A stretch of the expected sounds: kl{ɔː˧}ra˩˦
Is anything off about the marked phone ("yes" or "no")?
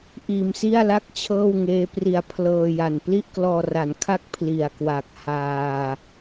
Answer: no